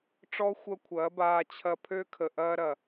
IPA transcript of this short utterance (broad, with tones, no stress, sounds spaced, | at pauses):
ʈ͡ʂ ɔ˦ xʷ ɐ˦ kʷʰ ɐː˨˦ b aː˧ t͡ɕʰ ɐ˧ pʰ ø˦ kʰ ə˨ ʔ ɐː˦ ɾ ɐ˨